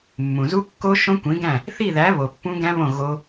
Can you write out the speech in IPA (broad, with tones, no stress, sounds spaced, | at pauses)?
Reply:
mː ũ˨ z u˦˥ kː o˦˥ ʃ õ˦˥ kʷ ĩ˨˥ ɡ æ̃˥˨ | θ i˥˨ ð æ˨˥ β o˨ pː ũ˦˥ ɡ æ̃˦˥ β õ˥˨ ɣ o˦˥